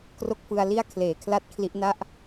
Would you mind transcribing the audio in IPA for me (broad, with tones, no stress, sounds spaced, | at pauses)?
k r o˥˩ k̚ f ɯ˧ a̯ l i˥˩ a̯ kʰ l eː˩˦ kʰ l a˥˩ t̚ kʰ l i˦˥ ʔ n a˥˩ ʔ